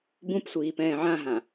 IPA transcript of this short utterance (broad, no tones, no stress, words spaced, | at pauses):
bũpsʷiːpɛ̃ː ʕãɦã